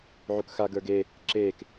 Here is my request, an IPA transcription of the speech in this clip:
ʕ u k x a ɡ ə˞ ɡ e | ǁ eː k

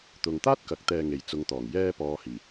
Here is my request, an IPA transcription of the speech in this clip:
t̪ ʊ˨ ŋ t̪ aː˥ t̚ k ɐ˨˥ k̚ t̪ ɛː˧ ŋ e˨ j t͡s ʊ˨˧ ŋ t̪ ɔː˨˩ ŋ j ɛː˧ p ɔː˨ h iː˨˩

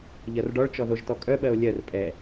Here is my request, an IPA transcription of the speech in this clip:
ʎ ɜ r ɖ ɔ ɭ t͡ʃ ɔ ð o ʒ t ɔ kʼ œ ɓ ɜ o̯ lʲ ɜ r pʼ ɛ

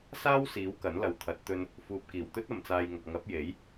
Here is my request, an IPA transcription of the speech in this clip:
s aː˥ w s iː˨˥ w k ɐ˨˥ n l ɐ˨ w t̪ʰ ɐ˨˥ t̚ t̪ ɵ˧ n | f uː˨ p̚ k iː˨˩ w t̪ ɵ˥ t̚ ɐ˨ m t͡s aː˧ j ŋ ɐ˨ k̚ ŋ ɐ˨˥ p̚ j e˨˥ j

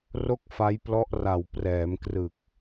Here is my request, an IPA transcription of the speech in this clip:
r o˥˩ k̚ f a˦˥ j p l ɔ˦˥ ʔ r a˨˩ w p r ɛː˩˦ m k r ɯ˨˩ k̚

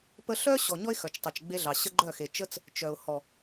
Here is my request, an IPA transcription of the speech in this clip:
p ə˦ ɬ œ˦ ɕ ɔ˨ ɲ ɔ˦ ɪ̯ x œ˨ t͡ʃ tˤ œ˨ t͡ʃ ɡ͡b e˧ ɮ ɑ˨ ɕ ə˦ ɡ͡ǃ œ˦˨ x e˨ t͡ʃ ə˦ t͡s | t͡ʃ œ˨ ʊ̯ h ɔ˨

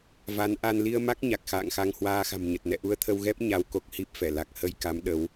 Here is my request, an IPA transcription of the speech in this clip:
v a˨˦ n ʔ a˧ n l i˧ ə̯ m a˦˥ k̚ ɲ a˨˩ k̚ x a̰ː˧˨ ŋ x a˧ ŋ h w aː˧ x a̤˨˩ m ɲ ə˨˩ t̚ n ɛ̰˧˨ ʔ u˧ ə̯ t̪ʰ ə˧ w ɣ ɛ˦˥ p̚ ɲ a˧ w k o˦˥ k̚ h i˦˥ p̚ f ɛ˧˩ l a˨˩ k̚ h ə˧ j k a˨˦ m ɗ ə˨˦ w

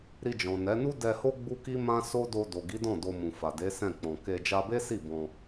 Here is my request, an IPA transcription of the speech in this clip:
ɾ i˧ d͡ʒ ɔ̃˨ n ɛ˨˦ n u˦ d ɛ˧ h o˦ ɡ͡b u˦ k i˦ m ã˦ s o˦ d o˧ d o˨ ɡ i˨˦ d ɔ̃˦˨ d o˧ m ũ˨ f a˨ d e˨˦ s ɛ̃˦˨ k͡p ɔ̃˨ k e˧ d͡ʒ a˧ b e˦ s i˦˨ b ɔ̃˧

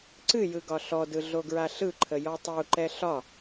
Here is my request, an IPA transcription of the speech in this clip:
ǀ ɨ j ɯ ɡ ɒ ɬ ɔ d ɯ ɮ o ɡ ɹ a ɬ ɯ ǃʰ ə j ɔ tˤ u ǃ ɛ ɬ ɒ

